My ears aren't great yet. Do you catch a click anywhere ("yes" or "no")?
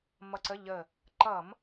yes